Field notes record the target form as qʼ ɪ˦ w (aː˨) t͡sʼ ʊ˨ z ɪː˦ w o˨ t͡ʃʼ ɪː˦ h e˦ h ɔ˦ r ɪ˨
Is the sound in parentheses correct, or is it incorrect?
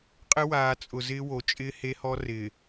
correct